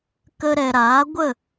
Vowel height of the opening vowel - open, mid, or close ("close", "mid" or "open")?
mid